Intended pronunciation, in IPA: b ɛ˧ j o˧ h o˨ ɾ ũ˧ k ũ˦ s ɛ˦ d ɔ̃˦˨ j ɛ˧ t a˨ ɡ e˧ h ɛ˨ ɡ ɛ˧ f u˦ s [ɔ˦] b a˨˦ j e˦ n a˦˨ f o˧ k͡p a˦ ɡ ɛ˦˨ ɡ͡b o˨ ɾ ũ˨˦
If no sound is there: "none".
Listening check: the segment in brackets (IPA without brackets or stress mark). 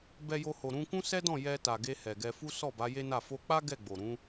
ɔ˦˨